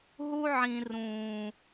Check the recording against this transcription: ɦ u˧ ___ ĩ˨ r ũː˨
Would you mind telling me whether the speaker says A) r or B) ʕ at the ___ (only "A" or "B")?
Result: B